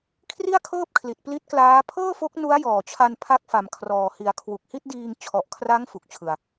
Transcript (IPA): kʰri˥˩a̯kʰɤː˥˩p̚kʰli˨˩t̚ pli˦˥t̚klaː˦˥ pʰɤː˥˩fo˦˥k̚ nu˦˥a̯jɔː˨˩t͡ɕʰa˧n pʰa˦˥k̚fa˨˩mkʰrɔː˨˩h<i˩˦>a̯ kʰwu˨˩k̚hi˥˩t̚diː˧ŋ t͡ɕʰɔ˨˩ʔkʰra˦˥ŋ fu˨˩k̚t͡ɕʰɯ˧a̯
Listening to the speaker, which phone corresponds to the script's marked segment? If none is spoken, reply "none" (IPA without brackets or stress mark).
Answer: i˩˦